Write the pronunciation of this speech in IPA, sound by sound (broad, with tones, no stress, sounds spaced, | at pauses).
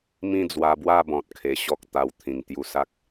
m ĩ˥˧ d͡z w a˧ b w a˥˧ b ɔ̃˨ t̚ kʰ e˧ ɕ ɔ˦ k̚ t̪ a˧ w t̪ʰ ĩ˨˩ ŋ t̪ j u˧ s a˦ k̚